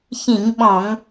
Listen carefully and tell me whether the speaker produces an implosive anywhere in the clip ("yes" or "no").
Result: yes